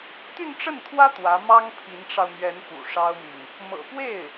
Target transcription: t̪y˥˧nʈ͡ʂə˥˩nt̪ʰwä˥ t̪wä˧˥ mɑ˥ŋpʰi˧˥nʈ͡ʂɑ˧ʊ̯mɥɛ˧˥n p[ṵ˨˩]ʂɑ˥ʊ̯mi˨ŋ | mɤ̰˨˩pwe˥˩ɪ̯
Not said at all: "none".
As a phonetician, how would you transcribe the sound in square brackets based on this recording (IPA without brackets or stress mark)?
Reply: ṵ˨˩